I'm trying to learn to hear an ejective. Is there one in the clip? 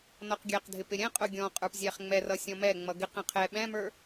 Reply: yes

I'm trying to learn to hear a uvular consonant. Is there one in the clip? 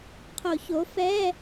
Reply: yes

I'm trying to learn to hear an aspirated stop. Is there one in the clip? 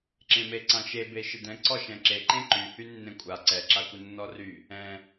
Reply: no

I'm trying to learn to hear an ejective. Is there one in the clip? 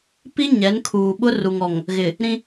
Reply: no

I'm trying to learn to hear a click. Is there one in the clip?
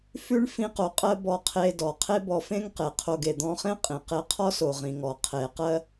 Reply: no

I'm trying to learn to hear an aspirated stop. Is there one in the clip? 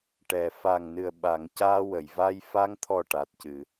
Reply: yes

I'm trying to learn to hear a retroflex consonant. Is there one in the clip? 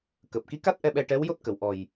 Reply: yes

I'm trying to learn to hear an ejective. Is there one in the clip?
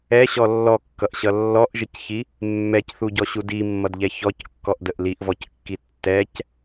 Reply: no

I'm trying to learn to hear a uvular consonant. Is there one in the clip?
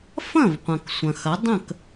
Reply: yes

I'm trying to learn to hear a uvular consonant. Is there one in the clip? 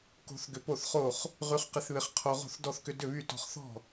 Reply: yes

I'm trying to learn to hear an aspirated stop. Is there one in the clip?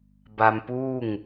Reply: no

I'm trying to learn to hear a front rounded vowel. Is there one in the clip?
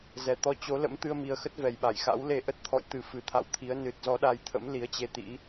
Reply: no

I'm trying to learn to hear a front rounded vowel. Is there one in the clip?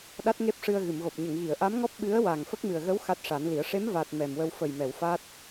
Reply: no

